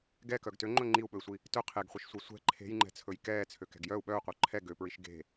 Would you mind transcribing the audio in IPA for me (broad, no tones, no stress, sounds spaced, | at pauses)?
ɡ ɛ k œ ɡ t ø ŋ͡ǃ ɵ ŋ͡ǃ i u̯ ɓ ɵ i̯ sʷ i | t ɵ qʰ e ɡ χʷ i ʃ sʷ e sʷ ɛ̤ ǃʰ e̤ j ŋ͡ǃ ɛ̤ t͡sʰ ɵ j k ɛː t͡sʰ ø k ɛ̤ ɡ j œ u̯ ɓ œ u̯ qʷ œ ǃʰ ɛ ɡ ø p ɹ i ʃ ɡ e̤